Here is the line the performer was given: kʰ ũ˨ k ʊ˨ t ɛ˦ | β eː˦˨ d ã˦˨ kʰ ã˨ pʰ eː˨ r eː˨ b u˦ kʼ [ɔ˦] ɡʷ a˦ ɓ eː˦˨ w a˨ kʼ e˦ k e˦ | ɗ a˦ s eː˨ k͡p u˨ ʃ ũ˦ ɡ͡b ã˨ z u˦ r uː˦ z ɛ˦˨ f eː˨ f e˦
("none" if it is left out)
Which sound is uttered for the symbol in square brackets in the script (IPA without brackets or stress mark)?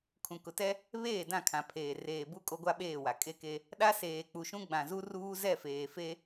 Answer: o˦